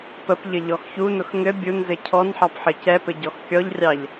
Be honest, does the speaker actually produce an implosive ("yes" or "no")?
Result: no